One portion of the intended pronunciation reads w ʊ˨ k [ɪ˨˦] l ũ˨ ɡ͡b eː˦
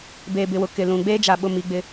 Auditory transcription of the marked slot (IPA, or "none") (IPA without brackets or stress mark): ɪ˨